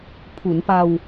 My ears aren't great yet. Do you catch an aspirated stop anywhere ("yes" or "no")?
yes